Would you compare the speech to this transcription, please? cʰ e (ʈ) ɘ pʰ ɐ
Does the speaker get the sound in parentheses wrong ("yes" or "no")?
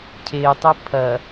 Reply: yes